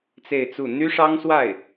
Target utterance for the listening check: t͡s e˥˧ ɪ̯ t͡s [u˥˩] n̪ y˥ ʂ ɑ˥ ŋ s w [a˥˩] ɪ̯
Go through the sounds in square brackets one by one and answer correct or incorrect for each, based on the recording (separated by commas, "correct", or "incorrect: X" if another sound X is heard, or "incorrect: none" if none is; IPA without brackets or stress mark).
correct, correct